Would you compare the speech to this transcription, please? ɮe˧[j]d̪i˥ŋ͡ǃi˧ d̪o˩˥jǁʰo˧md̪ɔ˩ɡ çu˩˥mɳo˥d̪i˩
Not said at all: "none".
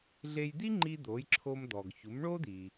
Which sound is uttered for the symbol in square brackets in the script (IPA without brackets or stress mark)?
j